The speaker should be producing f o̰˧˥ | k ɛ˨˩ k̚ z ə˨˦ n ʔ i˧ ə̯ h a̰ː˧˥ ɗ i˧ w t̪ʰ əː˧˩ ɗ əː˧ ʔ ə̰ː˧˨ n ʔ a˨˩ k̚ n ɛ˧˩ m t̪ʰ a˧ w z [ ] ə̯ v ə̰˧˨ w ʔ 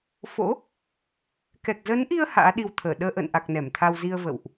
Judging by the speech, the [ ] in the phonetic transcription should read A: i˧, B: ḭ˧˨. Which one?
A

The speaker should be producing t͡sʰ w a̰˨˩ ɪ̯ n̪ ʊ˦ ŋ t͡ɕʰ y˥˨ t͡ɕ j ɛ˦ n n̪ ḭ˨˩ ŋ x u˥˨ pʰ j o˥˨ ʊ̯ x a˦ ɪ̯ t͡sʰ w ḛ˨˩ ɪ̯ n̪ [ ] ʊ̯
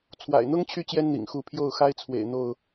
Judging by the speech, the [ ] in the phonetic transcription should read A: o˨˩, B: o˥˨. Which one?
B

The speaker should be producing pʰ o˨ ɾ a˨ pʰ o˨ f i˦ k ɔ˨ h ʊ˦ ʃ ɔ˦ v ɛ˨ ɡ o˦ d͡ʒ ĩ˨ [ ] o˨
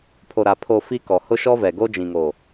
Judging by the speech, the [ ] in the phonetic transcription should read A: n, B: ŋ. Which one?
B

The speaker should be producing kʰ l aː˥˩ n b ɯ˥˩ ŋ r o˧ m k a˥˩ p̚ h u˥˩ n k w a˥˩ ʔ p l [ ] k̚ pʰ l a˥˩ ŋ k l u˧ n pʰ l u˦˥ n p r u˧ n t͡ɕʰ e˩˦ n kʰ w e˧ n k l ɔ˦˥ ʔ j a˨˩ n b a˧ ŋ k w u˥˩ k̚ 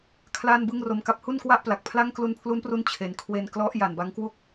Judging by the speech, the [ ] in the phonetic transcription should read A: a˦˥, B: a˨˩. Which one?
B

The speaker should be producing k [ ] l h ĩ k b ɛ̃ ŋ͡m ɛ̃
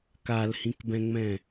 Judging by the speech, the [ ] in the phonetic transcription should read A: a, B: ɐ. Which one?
A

